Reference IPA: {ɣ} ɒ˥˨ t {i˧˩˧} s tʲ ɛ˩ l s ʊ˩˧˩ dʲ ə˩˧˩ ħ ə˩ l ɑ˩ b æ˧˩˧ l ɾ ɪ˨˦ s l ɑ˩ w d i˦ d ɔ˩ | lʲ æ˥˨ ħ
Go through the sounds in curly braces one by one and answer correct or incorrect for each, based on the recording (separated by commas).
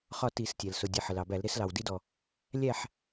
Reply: incorrect, correct